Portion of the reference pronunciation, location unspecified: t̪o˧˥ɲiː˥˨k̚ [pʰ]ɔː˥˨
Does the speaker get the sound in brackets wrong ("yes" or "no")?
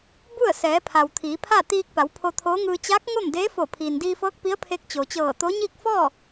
yes